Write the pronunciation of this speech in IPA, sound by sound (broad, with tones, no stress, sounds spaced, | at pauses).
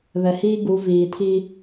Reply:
β ɛ˨ h iː˦ ɡ u˨˦ v iː˨ tʰ i˦